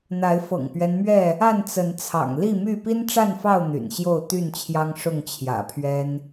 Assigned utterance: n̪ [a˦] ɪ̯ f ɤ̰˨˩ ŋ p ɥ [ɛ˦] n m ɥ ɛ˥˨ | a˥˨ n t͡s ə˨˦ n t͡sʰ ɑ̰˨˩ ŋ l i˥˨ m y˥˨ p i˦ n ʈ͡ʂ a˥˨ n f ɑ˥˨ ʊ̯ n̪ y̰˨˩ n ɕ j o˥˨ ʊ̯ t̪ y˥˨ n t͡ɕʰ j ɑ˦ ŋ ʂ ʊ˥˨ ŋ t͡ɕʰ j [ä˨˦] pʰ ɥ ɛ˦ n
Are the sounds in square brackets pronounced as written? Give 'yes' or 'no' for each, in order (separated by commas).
no, yes, no